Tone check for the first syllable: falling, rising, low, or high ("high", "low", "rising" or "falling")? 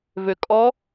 low